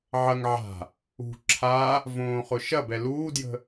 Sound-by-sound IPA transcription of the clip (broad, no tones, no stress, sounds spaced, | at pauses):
ʕ ɐ ŋ ʕ a̤ | ṳ ǁʰ a | v õː χ ʊ ʃ ɐ b ɛ l uː d j ə̤